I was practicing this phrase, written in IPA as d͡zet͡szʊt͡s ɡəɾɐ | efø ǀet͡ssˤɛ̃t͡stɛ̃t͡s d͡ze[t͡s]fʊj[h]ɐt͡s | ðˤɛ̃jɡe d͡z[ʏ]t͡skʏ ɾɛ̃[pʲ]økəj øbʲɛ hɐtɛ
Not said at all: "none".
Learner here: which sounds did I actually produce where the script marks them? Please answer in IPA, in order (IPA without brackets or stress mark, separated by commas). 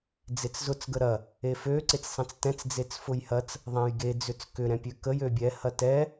t͡s, h, ʏ, pʲ